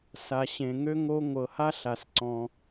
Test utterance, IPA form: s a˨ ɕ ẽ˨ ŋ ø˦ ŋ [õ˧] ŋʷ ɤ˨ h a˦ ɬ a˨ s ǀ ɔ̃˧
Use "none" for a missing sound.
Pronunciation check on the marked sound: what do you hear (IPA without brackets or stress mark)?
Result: o˧